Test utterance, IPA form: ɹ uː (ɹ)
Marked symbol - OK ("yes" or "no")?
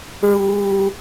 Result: no